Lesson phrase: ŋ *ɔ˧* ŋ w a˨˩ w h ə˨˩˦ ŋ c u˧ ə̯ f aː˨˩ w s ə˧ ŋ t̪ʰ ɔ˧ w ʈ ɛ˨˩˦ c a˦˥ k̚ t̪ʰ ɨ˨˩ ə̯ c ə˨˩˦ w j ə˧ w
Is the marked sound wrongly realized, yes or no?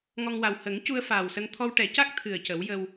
no